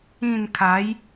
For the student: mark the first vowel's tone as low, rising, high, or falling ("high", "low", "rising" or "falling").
falling